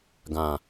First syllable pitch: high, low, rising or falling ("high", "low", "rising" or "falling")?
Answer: low